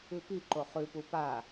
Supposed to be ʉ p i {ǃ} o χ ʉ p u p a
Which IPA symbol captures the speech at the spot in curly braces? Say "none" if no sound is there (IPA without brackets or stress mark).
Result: ǃ